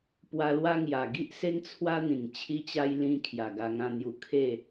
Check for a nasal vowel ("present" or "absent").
present